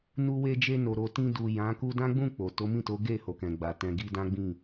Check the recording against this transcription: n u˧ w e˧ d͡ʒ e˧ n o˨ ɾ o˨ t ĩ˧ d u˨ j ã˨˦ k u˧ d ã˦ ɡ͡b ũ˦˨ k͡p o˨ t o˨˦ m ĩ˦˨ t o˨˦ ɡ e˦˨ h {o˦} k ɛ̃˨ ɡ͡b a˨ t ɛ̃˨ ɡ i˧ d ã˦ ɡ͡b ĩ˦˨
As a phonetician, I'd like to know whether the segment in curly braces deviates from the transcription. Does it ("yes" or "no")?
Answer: yes